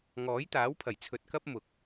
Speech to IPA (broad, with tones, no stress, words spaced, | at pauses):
ŋɔː˨˥jt̪aː˨˥wpʰɐ˨˩j t͡sʰɵ˨t̚kɐ˥p̚ mʊ˨k̚